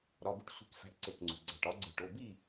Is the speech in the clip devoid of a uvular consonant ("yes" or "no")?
yes